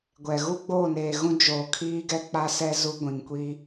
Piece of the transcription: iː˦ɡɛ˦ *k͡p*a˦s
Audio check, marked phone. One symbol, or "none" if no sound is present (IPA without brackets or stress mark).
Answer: k͡p